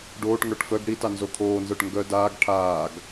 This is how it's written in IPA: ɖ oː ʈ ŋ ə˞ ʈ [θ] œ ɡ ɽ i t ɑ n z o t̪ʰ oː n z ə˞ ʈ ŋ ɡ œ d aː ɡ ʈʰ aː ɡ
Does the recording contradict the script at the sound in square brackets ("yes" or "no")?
yes